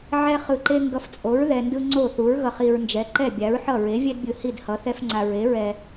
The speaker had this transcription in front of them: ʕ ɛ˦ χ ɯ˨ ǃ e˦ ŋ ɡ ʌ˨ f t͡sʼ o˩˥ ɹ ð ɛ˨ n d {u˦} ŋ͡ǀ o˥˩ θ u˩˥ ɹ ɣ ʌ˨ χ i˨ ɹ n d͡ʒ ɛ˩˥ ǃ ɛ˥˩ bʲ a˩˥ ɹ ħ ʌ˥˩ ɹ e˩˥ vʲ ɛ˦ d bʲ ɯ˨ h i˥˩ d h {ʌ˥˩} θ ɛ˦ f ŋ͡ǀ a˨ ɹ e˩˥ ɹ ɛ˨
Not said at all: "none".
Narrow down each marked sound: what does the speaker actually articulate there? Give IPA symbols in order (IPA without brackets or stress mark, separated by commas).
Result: ɯ˦, ʌ˩˥